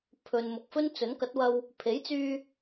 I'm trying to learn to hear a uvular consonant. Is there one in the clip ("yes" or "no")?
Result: no